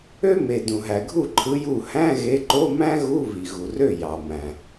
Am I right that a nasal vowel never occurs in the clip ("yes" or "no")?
no